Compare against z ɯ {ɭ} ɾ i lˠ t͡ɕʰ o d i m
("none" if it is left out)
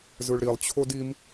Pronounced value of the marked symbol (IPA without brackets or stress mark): ɭ